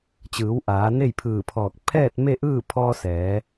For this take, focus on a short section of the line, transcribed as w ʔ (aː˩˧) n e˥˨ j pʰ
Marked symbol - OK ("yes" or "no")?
yes